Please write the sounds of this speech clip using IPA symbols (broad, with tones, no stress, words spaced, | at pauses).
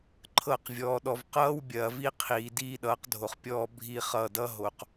ǃʰɤ˦˨q vʲɔː˨ɗɔ˨v qʌː˦w bʲɐː˨vi˦ qʰiː˨diː˦ɗʌː˨˦qdʱo˨χ pʲɔː˦ bʱi˦χʌ˦˨ dʌ˦ɦo˨q